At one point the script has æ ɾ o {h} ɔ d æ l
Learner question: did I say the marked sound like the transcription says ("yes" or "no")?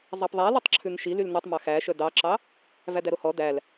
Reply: yes